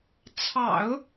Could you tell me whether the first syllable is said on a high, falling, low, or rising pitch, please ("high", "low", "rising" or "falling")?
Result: low